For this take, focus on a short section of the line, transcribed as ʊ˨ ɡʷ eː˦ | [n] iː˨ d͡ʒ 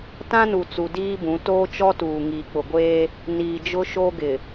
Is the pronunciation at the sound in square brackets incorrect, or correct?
correct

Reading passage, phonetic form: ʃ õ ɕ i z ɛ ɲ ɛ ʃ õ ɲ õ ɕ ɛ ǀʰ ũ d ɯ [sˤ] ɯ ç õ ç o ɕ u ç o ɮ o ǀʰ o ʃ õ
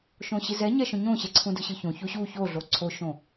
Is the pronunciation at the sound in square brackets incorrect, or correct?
incorrect: ɕ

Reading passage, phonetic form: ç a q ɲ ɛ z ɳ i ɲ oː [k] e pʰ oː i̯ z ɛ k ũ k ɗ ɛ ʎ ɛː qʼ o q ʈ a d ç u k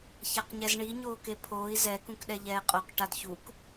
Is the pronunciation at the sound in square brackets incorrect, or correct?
correct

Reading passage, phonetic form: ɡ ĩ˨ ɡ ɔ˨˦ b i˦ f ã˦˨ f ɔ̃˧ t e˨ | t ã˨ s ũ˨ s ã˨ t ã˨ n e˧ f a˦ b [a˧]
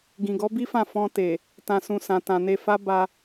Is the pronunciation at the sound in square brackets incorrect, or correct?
correct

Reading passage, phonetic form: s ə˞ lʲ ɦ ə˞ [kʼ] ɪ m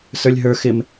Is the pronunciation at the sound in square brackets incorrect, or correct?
incorrect: x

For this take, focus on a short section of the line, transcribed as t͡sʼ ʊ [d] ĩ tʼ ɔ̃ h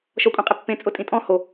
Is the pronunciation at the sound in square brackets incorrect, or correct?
incorrect: tʼ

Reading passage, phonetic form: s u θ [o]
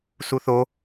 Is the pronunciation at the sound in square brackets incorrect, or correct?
correct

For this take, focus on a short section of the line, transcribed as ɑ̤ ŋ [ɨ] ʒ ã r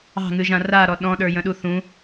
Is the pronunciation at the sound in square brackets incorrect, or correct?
correct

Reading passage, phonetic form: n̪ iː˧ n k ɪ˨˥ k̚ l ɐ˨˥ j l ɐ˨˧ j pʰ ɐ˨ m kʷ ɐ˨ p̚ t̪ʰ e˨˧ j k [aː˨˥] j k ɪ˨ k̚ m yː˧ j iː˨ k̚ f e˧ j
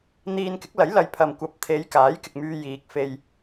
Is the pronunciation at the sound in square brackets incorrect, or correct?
correct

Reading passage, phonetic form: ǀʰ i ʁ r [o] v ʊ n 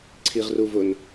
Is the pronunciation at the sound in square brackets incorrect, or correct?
incorrect: u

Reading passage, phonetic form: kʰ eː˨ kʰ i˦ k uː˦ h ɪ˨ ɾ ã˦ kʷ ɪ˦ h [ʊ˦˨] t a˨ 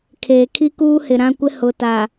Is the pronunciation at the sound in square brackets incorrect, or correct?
incorrect: ʊ˨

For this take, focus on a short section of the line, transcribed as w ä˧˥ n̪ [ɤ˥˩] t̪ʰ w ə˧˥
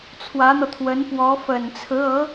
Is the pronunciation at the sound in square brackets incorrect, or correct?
incorrect: ɤ˧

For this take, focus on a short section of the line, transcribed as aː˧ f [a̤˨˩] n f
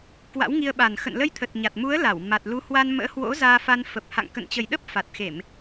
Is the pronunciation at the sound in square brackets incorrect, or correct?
incorrect: a˧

